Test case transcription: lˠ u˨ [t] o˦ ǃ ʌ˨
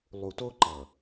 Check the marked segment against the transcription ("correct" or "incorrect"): correct